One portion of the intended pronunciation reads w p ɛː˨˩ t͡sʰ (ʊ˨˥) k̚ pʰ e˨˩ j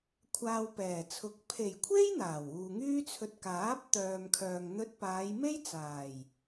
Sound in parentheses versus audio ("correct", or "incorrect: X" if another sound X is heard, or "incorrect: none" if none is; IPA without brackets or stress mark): correct